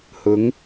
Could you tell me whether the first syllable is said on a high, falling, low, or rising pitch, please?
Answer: rising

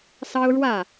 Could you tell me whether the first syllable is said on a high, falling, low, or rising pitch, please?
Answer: high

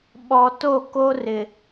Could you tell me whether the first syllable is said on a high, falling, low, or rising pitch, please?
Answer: low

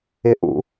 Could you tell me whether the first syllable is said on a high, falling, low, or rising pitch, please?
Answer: rising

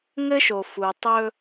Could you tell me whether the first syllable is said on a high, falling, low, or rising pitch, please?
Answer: high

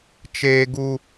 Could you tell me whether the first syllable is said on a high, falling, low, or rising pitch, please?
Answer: high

